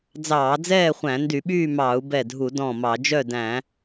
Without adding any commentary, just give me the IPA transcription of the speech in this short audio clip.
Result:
d͡z ɑː˧˩˧ d͡z ɛː˥˨ χʷ æ̃˧˩˧ n d y˧˩˧ ɓ yː˥˨ m ɑː˧˩˧ u̯ b ɛ˧˩ dʱ u˧˩˧ d ɔ̃˧˩ m ɑ˧˩˧ d͡ʒ œ˥˨ d æ̃˧˩˧

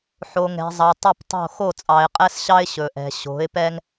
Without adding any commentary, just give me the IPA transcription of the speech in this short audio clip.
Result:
ħ o˨ ŋ ɛ̤˨ zˤ ɑ˨ tˤ ɵ˦˨ p tˤ o̤˦˨ x o˦˨ t͡sʼ ɑ˨ ɪ̯ qʼ ɛ˦ s ɕ ɑ˦ ɪ̯ ɕ ɵ˨ ʔ ɛ̤˨ ɕ o̤˨˦ ɪ̯ p ɛ˦ ŋ

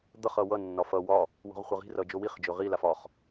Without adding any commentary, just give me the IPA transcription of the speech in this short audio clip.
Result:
d̪ ʌ χ ʌ w ʌ nː ɒ f ʌ w ɒ | w o̤ ʁ χʷ ʌ ʁ i̤ r ʌ d͡ʒ o w i χ d͡ʒ ɵ ʁ i l a f ɒ χ

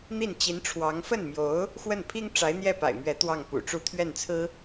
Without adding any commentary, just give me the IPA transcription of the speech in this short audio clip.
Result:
n̪ i˥˩ n t͡ɕ i˧˥ n ʈ͡ʂʰ w ɑ˧˥ ŋ f ə˥˩ n m j o˧˥ ʊ̯ | x w ə˥˩ n pʰ i˥ ŋ ʈ͡ʂ a˧˥ ɪ̯ n̪ j ɛ˥˩ p a̰˨˩ ɪ̯ m ɥ ɛ˧˥ t̪ w ɑ˥˩ ŋ p ṵ˨˩ ʈ͡ʂ u˥˧ t̪ʰ ɥ ɛ˥˩ n t͡sʰ ɹ̩˥

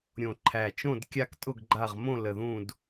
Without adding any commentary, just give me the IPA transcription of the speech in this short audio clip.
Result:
ɾʲ õ˨˩ ǃʰ æ˨˩ t͡ʃ õ˦˨ d kʲ a˦˨ k tʼ ʊ˦˨ ɡ ɡ͡ǃ a˦˨ ʁ m õ˦˨ l ə˨˩ ð ũ˦˨ d

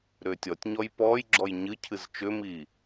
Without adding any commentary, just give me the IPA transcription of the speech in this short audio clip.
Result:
ɾ ʏː tʲ ɔ tʲ ɲ ɔ j p ɔː j ɡ͡ǁ ɔ j ɲ ɨ cʰ ɨ z t͡ʃ ʏ m i

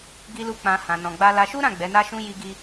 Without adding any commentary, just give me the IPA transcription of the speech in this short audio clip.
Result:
ɡ i˦ l u˦ k͡p ã˧ h ã˧ n ɔ̃˧ ɡ͡b a˦ l a˧ ʃ u˦ ɾ ã˦˨ ɡ͡b ɛ˨˦ n a˦ ʃ ũ˦ j i˦ ɡ i˦

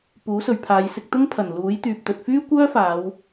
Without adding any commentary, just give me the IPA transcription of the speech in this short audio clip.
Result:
p uː˨˥ s ɵ˨ ɥ pʰ aː˨˧ j s ɪ˧ k̚ t̪ ʊ˥ ŋ pʰ ɐ˨˩ n l uː˨˥ j t̪ yː˨ p̚ t̪ ɵ˨ t̚ f yː˥ kʷ œː˥ f aː˨˧ w

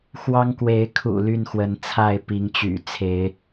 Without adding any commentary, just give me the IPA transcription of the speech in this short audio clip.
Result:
x w ɑ˦ ŋ k w e˨˦ ɪ̯ kʰ ṵ˨˩ l y˥˨ n x w ə˨˦ n t͡sʰ a˥˨ ɪ̯ p i˨˦ ŋ t͡ɕ y̰˨˩ t͡sʰ e˨˦ ɪ̯

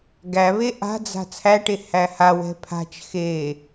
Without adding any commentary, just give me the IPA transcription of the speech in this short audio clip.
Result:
ɡ æ β e ʔ a̤ d͡z a̤ t͡sʰ æ ʈ e h æ h a w ɛ̤ pʰ a̤ t͡ʃ x e

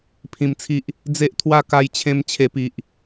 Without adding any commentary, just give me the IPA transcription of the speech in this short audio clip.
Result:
pʰ ĩ˧ m t͡sʰ i˦ ʔ | d͡z e˦ ʔ t̪ʰ w a˥˧ k a˥˧ j t͡ɕʰ ẽ˦ m t͡ɕʰ e˧ p i˨ ʔ

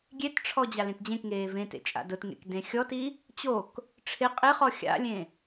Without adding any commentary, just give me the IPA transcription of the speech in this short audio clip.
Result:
ɡʲ e t ʈ͡ʂʰ ɔ d͡ʑ a l ẽ t d͡ʑ ẽ k ŋ eː v ẽ t ḛ t͡ʃʼ a̰ d ʊ t ŋ ḛ k d ẽ xʲ ɔ t i | t͡ɕ o k | ʈ͡ʂʰ ɪ qʼ ɪ χ ɔ xʲ a̰ lʲ ẽ

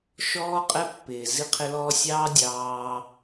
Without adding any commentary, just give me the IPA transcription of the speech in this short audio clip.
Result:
ʃ ɔː˦ qʼ ɛ˦ pː ɪː˨ z i˦ qʰ ɪ˦ l ɔː˦ sʲ ɑː˦ dʲ ɑː˦

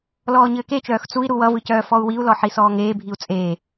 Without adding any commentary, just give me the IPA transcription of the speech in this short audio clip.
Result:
l ɔː ɲ ɘː k e t͡ʃ œː x t͡s u i̯ ɾ u w ʌ v ɯ c œː f ɔ u̯ w i u̯ l ɔ ħ i s ɔː ŋ eː bʱ i u̯ t͡sʼ eː

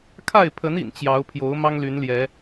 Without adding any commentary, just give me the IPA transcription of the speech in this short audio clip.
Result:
kʰ a˥˨ ɪ̯ pʰ ə˨˦ n ḭ˨˩ n t͡ɕ j ɑ˨˦ ʊ̯ pʰ j o˨˦ ʊ̯ m ɑ˦ ŋ l y˨˦ n l j ɛ˨˦

